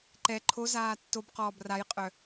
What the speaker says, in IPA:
ǃ ɛ ǃʰ o z aː tː o b q ɔː b r a j qʼ œ

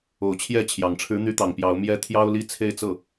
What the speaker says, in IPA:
o˨˩ ʊ̯ t͡ɕʰ j ɛ˥˩ t͡ɕʰ j ɑ˨˩ ŋ ʈ͡ʂʰ ɻ̩˧˥ n̪ y˧˥ t̪ ɑ˨˩ ŋ p j ɑ˧˥ ʊ̯ m j ɛ˧˥ t̪ʰ j ɑ˥ ʊ̯ l i˥˧ t͡sʰ e˥˧ ɪ̯ t͡s ɤ˥˩

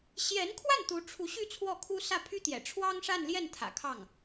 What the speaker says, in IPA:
ɕ j ɛ˧˥ n kʰ w a˥˩ n t̪ u˧˥ ʈ͡ʂʰ u˧˥ ɕ y˥˧ t͡sʰ w ɔ˥˩ kʰ u˥ s ä˥˩ pʰ y˥ t̪ j ɛ̰˨˩ ʈ͡ʂʰ w ɑ˥ ŋ ʂ a˥˧ n l j ɛ˥˩ n t̪ʰ ä̰˨˩ kʰ ɑ˥˩ ŋ

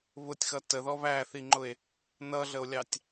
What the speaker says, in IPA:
β ʊ tʲ x ʌ t ə ð ɔ β æ θ i ŋ͡ǃ ʊ e̯ | n ʌ ɮ ə o̯ lʲ ɑ tʲ

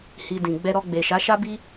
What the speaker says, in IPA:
h i˧ d ĩ˨ ɡ͡b ɛ˧ ɾ ɔ˧ ɡ͡b e˨ ʃ a˨˦ ʃ a˦ b i˦

